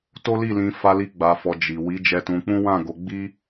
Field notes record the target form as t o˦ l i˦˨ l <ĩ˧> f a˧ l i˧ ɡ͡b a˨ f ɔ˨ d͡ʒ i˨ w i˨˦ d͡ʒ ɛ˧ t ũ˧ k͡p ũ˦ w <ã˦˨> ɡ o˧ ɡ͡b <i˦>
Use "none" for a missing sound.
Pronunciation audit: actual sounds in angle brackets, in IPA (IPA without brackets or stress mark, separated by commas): ĩ˧, ã˦˨, i˦